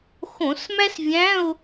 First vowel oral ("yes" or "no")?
no